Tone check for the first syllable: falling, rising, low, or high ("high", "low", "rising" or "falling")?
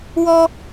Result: high